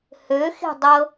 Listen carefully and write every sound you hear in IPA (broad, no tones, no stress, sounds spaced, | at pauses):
h ø x e̤ dˤ ɤ